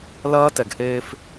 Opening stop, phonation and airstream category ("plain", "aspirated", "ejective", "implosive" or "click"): plain